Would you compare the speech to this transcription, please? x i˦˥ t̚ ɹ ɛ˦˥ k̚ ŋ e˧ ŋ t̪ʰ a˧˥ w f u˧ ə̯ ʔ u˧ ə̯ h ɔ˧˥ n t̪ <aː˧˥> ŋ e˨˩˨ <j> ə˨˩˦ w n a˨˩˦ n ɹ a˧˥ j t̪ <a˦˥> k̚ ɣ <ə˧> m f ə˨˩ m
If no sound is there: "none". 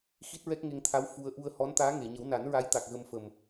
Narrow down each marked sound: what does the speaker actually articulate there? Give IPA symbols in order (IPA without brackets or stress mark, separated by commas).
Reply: aː˧˥, ɲ, a˨˩, ə˧